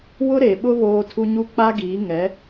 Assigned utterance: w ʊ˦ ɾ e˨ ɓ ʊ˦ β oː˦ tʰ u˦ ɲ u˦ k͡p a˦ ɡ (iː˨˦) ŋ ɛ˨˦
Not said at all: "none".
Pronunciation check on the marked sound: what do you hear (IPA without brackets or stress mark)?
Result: iː˨˦